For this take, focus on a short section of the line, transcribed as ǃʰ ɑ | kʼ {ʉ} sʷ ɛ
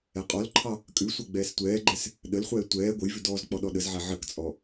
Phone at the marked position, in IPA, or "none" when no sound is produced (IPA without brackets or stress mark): ʉ